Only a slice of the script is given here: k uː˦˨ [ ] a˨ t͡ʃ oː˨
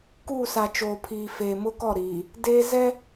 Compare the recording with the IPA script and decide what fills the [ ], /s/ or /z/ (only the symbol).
s